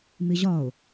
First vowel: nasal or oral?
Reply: oral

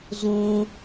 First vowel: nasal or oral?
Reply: nasal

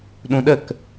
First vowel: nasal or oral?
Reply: nasal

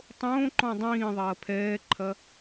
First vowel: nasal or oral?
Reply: nasal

